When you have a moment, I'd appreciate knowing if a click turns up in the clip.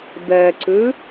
yes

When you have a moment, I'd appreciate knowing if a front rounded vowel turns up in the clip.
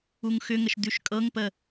yes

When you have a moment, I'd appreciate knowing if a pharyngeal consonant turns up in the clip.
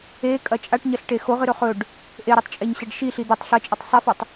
no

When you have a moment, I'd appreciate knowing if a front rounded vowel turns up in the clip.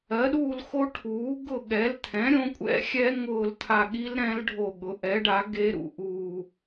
no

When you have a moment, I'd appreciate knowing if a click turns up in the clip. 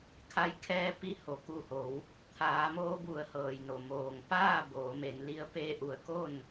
no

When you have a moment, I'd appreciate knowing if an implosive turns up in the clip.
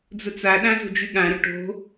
yes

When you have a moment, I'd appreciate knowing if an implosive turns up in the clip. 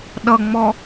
yes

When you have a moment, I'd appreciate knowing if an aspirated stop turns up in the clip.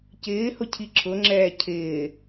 yes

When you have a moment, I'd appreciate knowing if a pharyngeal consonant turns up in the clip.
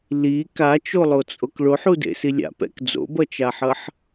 yes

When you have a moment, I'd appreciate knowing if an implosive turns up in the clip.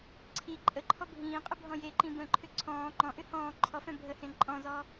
no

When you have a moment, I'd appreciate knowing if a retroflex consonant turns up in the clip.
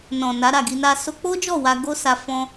no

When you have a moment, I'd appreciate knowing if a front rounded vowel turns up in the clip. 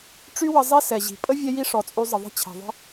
yes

